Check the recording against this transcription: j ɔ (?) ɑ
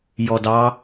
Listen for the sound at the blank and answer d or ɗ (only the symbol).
d